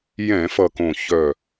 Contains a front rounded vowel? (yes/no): yes